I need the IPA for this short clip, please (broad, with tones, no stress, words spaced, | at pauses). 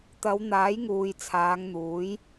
t̪ɐ˨˧w n̪aː˨˥jŋuː˨jt͡sʰaː˨˧ŋ n̪uː˨˥j